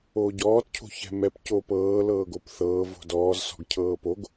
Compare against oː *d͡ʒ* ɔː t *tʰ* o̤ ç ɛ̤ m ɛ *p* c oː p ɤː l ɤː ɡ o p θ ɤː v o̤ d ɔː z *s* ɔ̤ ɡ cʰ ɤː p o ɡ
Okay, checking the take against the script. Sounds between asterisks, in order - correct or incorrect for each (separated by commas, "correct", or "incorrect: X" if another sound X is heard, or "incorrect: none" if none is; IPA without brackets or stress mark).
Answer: incorrect: ɟ, incorrect: cʰ, correct, correct